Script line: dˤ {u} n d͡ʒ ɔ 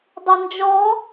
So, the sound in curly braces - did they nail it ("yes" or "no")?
no